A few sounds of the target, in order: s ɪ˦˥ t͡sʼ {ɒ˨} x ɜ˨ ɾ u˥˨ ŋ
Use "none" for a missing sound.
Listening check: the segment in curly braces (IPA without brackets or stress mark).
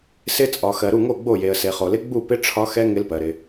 ɒ˨